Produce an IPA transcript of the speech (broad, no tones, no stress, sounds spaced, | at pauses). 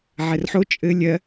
ʕ ɛ r ħ o t͡ʃʼ ɘ lʲ ɜ